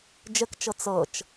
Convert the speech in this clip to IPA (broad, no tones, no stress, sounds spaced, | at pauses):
d͡ʒ ə k t͡ʃ ɤ t͡s ɤ t͡ʃ